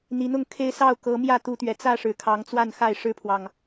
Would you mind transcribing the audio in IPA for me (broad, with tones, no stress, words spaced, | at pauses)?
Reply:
n̪i˨˦n̪ʊ˥˨ŋkʰe˦ɪ̯ sɑ˥˨ʊ̯kɤ˨˦ mjä˥˨t̪u˨˦t̪ɥɛ˨˩ t͡sä˥˨ʂɻ̩˨˩kʰɑ˨˦ŋt͡swa˥˨n xa˥˨ɪ̯ʂɻ̩˦pʰwɑ˨ŋ